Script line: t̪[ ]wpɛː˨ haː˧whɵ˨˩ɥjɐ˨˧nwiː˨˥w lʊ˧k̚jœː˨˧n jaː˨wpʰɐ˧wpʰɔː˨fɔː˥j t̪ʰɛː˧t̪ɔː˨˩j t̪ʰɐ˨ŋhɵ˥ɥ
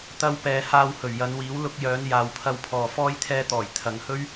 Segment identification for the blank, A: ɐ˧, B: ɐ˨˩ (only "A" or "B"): A